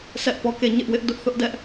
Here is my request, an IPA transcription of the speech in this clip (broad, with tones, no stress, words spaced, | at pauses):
sʰɛ˦ʔpɔ˦˨ke˦˨ ɲɪ˦ʔwɪ˦ʔ dʊ˦ʔθʊ˦ʔdɛ˦ʔ